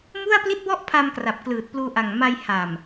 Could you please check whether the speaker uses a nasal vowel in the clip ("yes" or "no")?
no